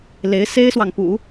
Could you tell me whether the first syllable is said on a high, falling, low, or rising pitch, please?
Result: rising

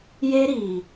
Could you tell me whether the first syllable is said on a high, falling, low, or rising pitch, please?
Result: high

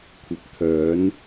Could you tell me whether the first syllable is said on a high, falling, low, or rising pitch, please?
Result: low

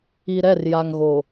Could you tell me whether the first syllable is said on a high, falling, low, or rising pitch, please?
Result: low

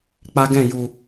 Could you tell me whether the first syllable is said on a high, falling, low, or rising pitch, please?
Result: high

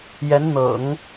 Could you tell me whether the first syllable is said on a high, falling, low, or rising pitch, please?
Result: rising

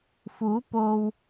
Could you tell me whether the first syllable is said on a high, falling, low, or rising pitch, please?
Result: rising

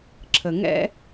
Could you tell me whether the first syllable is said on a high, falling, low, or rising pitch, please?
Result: low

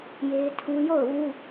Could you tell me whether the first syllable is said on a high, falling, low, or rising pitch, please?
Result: high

